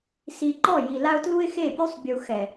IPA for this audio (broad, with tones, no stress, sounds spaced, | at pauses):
s i˨ ǃ ɔ˦˨ j i˨ l a˦ ʊ̯ t l u˦ ɪ̯ x e˦˨ pʲ u˦ sˤ bʲ u˨ x ɛ˨